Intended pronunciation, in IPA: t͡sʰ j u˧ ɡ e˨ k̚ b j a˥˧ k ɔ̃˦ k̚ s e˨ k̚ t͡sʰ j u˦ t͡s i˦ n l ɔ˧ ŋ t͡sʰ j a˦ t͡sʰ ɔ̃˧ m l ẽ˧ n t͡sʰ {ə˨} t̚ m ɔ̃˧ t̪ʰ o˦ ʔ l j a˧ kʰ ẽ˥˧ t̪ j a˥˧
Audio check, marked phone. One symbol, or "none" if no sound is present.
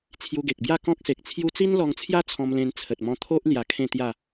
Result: ə˨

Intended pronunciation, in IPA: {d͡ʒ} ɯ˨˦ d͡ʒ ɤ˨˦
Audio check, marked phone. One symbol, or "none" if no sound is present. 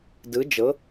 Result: d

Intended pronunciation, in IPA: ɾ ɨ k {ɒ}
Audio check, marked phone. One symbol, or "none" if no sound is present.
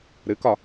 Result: ɒ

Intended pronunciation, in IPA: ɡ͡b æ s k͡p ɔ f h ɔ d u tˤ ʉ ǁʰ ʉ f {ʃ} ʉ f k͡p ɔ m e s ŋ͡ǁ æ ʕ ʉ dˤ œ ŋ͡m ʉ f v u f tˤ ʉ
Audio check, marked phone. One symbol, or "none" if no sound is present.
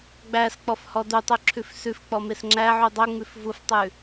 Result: s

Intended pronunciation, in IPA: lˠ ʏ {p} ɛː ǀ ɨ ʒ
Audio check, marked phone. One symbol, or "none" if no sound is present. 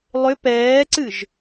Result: p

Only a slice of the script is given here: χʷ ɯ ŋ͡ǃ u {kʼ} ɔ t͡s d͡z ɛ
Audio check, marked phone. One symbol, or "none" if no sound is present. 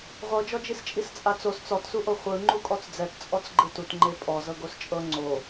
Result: kʼ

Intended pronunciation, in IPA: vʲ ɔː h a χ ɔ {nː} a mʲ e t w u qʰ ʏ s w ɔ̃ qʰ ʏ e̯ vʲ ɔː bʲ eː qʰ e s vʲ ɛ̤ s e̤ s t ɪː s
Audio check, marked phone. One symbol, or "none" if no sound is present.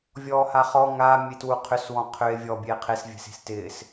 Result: ŋ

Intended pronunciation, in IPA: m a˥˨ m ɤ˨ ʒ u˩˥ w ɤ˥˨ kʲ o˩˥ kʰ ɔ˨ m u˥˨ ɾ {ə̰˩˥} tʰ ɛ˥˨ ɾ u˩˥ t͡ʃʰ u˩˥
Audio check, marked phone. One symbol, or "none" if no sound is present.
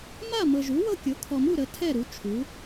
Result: ə˩˥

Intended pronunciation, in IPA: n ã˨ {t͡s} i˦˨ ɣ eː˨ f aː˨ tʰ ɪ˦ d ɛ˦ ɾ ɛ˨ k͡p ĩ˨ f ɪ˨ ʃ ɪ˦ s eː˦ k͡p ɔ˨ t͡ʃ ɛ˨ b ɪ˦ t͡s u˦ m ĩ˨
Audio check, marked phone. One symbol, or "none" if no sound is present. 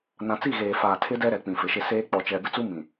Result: t͡s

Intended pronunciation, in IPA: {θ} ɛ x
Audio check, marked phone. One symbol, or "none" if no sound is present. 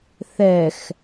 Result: θ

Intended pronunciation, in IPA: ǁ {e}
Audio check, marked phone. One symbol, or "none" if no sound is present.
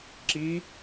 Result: i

